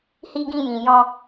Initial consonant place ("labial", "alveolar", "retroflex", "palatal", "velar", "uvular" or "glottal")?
glottal